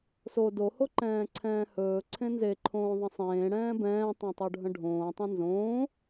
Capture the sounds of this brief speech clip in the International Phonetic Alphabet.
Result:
so dohoǃɛ̃ː ǀʰɛ̃ːhɵː ǀʰẽnzeǃʰõːðˤə̃ sˤẽːɽɛ̃ː bɛ̃ːtˤɛ̃tˤoɖʱə̃ ɖʱõːtˤẽ nzõː

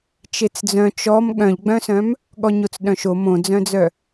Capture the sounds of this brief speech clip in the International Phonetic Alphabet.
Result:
t͡ʃet͡sd͡zœ̃ t͡ʃɔm ɠœ̃ʎɡ͡bœ̃sœ̃m | ɠɔɲot͡sɗœ̃ʃo mõd͡zœ̃d͡zœ

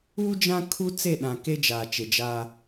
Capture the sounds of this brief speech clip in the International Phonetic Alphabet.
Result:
u˦d͡ʒã˦ kʰu˦t͡se˦˨ɗã˨ ke˦d͡ʒaː˨ t͡ʃe˨d͡ʒaː˦

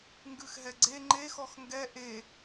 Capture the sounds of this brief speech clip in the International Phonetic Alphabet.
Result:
ŋɡʉxɦɛɡ͡ǀe ŋ͡ǃe xɔxŋɡɛ ʔe

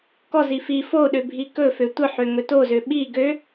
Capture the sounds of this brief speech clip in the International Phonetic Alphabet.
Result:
kɔzi fi foɗø bʱikɵfø tʷəħø ŋɵtozø ɓi ɡø

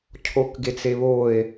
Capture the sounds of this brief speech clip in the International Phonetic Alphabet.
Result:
cʰokɡet͡seβoe̯

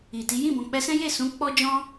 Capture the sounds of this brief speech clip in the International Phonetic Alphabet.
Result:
i˨ti˨˦ jĩ˦˨bɔ̃˨k͡pɛ˧sɛ̃˦ je˦˨sũ˨˦ k͡pɔ˦ d͡ʒɔ̃˦

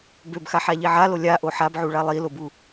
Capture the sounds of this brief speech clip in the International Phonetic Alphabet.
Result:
bøbxaħaʎi ʕalo lʲaʔo ħabʕuɭa lˠilobu

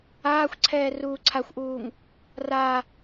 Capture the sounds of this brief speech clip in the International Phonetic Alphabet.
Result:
aːxʷǀʰɛː ruːǀʰaxʷʔuːŋ | ra

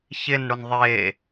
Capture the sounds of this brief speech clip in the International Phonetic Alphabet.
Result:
çɪnɽʊn ðˤe

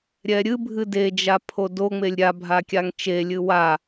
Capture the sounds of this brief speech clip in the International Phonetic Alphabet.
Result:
ɾʲɛɾʲɨbʱɨ ded͡ʒa pʰodoŋ͡melʲ ɾʲabʱa kʲaŋt͡ʃelʲɨ wa

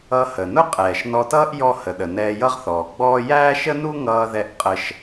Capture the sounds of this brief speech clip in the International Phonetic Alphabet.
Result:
ʌ˧hə˩nʊ˥ qʼɛː˩ʃ nɔ˧tʌː˥ʔ jɔ˥hə˩ɗə˩ nɛː˧jʌ˥ʁθɔː˩ɡ͡bɔː˥ jæː˥ʃə˥nu˥ŋʌː˧ ðɛ˧ʔqʼə˧ʃ

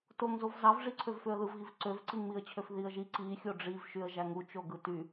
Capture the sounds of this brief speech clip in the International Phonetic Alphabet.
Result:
toŋzov zɑvʐiǀʰøv føə̯ðɯvɣiv ǀøvǀiŋmiə̯t͡ɕʰøf ðiə̯ʒi ǀi xʲoɖ͡ʐivʃyə̯ ʒæŋut͡ʃo ɡɯty

